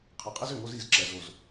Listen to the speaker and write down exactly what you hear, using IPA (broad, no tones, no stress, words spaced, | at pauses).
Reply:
qʰəqʼez ʏŋoz iz ǁɛzoz